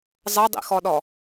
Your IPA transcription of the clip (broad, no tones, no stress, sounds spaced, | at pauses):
zˤ ɤ dˤ ḭ x ɔ ɗ ɔ